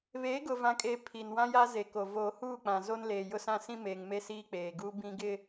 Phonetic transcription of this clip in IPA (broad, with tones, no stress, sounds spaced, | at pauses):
β eː˨˦ ɡ ʊ˨ v ã˨ kʼ eː˨ pʰ i˨ n w ã˦ j a˦ z e˨ k o˨ v oː˨ h uː˦˨ k͡p ã˨ z o˦ n l eː˨ j ʊ˦ s ã˦ s ĩ˦ m eː˨ ŋ m e˦ s iː˦ k͡p eː˨ ɡ uː˦ b ĩ˦ ɡ ɪ˦